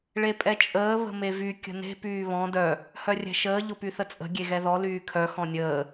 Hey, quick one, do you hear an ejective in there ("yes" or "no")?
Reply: yes